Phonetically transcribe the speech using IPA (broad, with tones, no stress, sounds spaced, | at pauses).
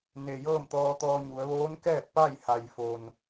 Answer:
n e˩ j ɤː˥˨ m t̪ ɔː˧ t̪ ɔː˧ ɲ u˩˧ ə̯ ʋ oː˧˥ n k ɛː˥˨ t̚ p a˥˨ j h a˩ j f o˩ n